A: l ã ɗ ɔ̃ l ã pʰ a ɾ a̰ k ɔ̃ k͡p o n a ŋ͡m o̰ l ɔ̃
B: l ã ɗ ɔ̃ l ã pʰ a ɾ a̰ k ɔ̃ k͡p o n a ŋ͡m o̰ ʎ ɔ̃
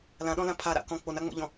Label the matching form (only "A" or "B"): B